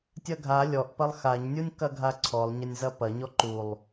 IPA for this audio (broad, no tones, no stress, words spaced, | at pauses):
tʲɐɡʱa lʲɔʔpɐlˠ xaɲnʲunʲ kɐɡʱaǀʰɔlˠ ɲɐnʲzɐpɐ ɲɔǃulˠ